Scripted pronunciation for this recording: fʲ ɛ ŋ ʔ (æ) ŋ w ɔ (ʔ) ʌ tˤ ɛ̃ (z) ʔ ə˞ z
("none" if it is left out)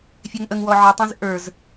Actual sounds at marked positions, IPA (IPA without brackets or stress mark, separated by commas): ə, ʕ, z